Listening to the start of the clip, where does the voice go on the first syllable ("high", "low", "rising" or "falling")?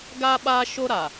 high